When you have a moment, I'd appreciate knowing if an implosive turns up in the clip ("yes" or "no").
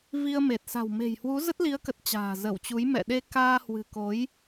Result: yes